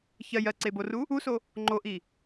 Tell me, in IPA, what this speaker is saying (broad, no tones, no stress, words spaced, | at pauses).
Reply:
çɜj ɜǀeboru | uso | ŋ͡ǃoʔi